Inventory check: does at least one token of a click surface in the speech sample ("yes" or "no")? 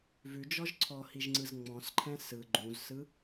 yes